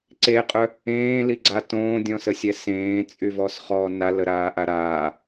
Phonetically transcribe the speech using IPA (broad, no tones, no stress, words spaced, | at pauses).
ǀeqʼœ | ẽːliɡ͡ǀa tõːdʲɔ̃səsʲɛ sẽːt͡sʼyvɔsχɔː naləɾaːʔa ɾaː